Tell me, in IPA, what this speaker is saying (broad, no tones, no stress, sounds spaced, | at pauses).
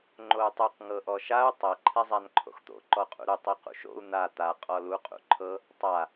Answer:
ŋ͡ǃ o u̯ tˤ ɯ q ŋ ɤ ʔ ɔ ʃ a u̯ tˤ ɤ ǃʰ ɛ zˤ a n ǃʰ o̰ x t̪ o̰ ǃ ɔ qʼ ṵ ɾ u tˤ i q ṵ ʃ o̰ u̯ n̪ a t̪ a qʼ ɔ l u qʼ ṵ ǃʰ ɤ | tˤ a